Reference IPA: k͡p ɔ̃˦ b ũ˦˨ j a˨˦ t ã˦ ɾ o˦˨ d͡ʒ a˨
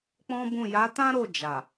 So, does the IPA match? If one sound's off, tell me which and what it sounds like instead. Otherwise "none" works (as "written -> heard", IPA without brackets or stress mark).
none